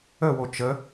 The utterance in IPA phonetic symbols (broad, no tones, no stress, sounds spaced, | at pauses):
ə w o t͡ʃ ə